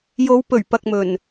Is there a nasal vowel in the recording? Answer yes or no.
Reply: no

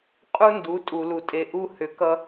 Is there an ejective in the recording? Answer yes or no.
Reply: yes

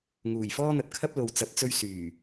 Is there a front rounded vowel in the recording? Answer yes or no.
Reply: yes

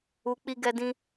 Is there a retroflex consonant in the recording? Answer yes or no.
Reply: no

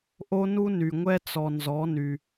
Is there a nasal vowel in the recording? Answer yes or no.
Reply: no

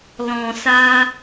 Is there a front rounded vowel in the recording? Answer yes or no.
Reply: no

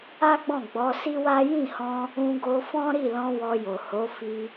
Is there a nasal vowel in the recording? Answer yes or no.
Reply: yes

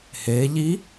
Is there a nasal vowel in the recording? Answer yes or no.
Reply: no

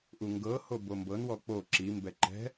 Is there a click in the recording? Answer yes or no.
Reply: yes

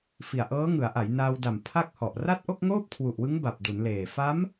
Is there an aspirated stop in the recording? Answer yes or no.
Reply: yes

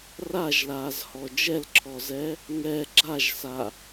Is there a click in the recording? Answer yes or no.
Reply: yes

